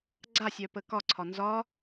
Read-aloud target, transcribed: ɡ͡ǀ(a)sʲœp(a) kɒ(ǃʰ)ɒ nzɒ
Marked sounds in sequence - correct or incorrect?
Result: correct, incorrect, incorrect

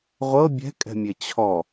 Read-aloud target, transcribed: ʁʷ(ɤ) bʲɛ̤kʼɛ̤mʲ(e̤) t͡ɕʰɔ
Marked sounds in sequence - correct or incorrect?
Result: correct, incorrect

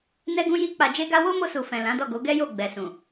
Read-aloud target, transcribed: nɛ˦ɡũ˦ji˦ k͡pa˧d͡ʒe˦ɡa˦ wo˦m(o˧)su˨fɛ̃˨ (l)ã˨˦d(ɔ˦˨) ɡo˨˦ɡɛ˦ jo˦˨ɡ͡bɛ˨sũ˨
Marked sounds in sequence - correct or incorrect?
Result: correct, correct, correct

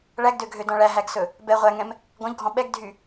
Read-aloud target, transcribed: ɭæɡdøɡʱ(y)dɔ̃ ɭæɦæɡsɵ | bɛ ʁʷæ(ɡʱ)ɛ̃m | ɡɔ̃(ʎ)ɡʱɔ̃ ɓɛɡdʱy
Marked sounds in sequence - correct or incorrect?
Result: incorrect, incorrect, correct

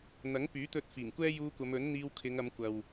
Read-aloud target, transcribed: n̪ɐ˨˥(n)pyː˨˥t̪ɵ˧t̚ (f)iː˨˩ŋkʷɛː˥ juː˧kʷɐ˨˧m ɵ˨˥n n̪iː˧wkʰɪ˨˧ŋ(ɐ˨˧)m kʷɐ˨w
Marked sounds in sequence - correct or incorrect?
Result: incorrect, correct, correct

